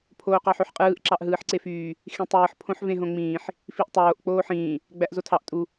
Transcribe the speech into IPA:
pʰ oː q ɑ ħ ø ħ qʼ ɯː ʔ ǁ ɑ ʔ ɦ ɯː ħ ǀ e f yː | x ĩ tˤ ɯː ħ pʰ õ ħ v ẽ ɦ õ ŋ͡m ĩː ħ | f i ʔ tˤ oː ʔ k͡p oː ħ ĩː | ɡ͡b æ ʔ z o tʰ ɑ ʔ tʼ u

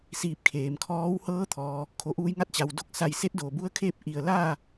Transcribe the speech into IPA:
s iː˧ p̚ kʰ eː˩ m kʰ ɔː˧˥ w h ɤː˧˥ t̪ʰ ɔː˩ | kʰ o˧˩ ʔ uː˧ j ŋ a˧˥ t̚ t͡ɕ a˩ w d o˥˨ k̚ s a˧˩ j s e˧˥ t̚ d oː˩ b u˧˥ ə̯ kʰ eː˥˨ p̚ ʔ i˧˩ ə̯ l aː˥˨

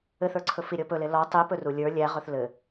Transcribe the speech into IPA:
ɘ θ ə˞ ǀʰ ɵ f i ɾʲ ɔ p ɵ l e l ɔ tˤ i p ɵ r u lʲ ə˞ lʲ æ ʁ ɵ θ l ɘ

